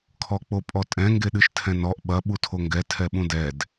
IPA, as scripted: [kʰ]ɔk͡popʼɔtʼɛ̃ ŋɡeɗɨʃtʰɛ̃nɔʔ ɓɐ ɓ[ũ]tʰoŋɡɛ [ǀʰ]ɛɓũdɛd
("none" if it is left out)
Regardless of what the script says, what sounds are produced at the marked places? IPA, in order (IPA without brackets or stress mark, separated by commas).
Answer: kʰ, u, tʰ